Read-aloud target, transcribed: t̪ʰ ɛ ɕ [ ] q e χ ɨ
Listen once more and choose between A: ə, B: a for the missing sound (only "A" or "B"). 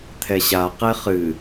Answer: B